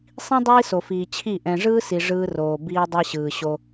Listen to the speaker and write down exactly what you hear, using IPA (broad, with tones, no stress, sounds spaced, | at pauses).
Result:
sˤ ĩ˦ dˤ iː˦ s o˨ f iː˨ t͡ɕʰ i˦˨ ʔ ɛ̃˨ ʐ ɯː˦ s i˨ ʐ ɯː˦ r oː˨ b iː˦ dˤ ɛ˦ ɕ ɯː˨ ɕ o˦